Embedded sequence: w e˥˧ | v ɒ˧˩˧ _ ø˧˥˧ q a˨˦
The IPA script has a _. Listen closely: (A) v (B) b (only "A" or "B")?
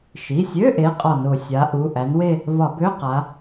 B